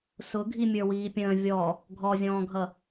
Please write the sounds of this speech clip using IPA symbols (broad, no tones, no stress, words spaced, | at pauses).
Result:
sʊ ɡʱimʲə˞wiːpʲə̃ː vʲɔ | ɡʱɔzʲɔ̃ːɡʱʌ